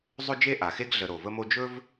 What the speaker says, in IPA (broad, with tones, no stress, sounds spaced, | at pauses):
zˤ ɵ˥ d͡ʒ e˥ ʔ a˩ x e˥ ɡ ɮ ə˨ ɾ o˩ v ə˥ m o˥ d͡ʒ ɵ˥ v